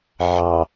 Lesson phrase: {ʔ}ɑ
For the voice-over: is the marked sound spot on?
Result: no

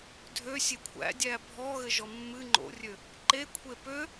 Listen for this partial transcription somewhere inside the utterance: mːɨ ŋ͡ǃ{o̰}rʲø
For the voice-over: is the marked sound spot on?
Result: yes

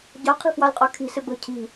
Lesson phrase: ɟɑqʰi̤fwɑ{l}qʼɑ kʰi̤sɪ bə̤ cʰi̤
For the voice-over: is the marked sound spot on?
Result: yes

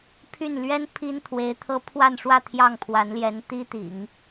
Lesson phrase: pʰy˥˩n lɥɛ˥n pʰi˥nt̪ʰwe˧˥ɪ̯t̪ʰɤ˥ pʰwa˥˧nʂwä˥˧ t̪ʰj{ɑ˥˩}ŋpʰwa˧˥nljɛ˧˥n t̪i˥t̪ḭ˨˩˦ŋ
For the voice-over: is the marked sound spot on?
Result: yes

